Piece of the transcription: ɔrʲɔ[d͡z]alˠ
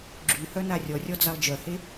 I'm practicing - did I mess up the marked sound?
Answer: no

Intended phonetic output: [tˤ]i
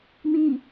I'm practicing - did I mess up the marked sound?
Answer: yes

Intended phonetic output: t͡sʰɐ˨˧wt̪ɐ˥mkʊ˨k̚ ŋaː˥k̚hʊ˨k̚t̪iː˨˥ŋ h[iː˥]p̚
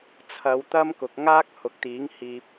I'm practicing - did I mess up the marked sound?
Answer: yes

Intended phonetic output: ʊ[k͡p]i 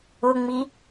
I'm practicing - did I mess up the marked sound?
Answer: yes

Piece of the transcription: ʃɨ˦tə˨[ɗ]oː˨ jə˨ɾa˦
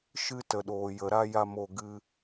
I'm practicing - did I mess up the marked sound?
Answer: no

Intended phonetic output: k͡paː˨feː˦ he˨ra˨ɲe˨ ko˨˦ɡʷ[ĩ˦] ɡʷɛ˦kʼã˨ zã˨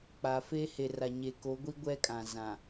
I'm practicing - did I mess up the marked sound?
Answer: yes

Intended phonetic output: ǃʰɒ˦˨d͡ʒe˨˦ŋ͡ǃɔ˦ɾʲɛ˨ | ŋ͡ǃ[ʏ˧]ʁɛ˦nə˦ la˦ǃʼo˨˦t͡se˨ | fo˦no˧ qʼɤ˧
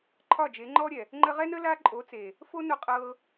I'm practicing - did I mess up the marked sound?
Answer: yes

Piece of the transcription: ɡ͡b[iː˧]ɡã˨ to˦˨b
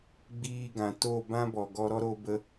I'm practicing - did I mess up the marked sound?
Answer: no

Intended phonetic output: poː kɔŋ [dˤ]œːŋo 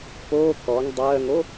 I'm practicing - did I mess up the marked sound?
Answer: no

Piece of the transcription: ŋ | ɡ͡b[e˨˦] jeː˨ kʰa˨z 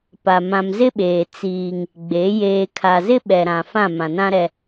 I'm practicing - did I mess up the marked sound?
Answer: no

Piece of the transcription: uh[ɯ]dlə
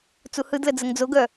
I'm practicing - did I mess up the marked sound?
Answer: no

